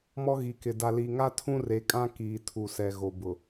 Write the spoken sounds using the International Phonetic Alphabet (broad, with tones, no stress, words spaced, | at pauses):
mɔ˦ɣi˨ kɪ˨ da˨li˨ŋa˦ tʰũ˦re˨kʼã˦ kiː˨tʰu˨sɛ˨ ɣo˨bʊ˨